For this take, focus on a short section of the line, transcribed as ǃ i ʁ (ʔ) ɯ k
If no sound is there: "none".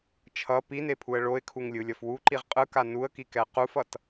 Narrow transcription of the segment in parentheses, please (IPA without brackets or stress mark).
qʼ